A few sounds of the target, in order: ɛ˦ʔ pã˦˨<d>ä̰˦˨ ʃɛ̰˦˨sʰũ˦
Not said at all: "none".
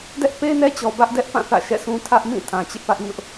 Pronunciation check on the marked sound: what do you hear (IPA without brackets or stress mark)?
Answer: θ